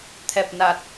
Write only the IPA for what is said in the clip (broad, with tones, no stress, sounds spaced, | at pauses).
t̪ʰ ɛ˨˩ p̚ n a˨˩ t̚